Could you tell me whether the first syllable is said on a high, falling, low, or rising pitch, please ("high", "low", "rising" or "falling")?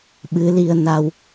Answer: rising